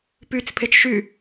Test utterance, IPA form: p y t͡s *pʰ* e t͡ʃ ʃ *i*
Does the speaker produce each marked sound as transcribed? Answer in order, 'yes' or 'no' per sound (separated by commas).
yes, no